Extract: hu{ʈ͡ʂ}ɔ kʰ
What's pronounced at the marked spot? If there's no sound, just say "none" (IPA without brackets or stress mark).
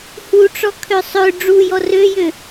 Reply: ʈ͡ʂ